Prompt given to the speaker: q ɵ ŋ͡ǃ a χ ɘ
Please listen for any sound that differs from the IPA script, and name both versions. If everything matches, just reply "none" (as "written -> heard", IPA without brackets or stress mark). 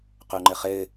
a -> ə